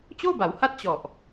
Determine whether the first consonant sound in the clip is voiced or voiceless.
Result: voiceless